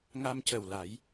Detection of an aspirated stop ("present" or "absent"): absent